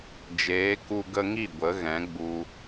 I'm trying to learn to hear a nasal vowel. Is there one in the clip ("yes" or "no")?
yes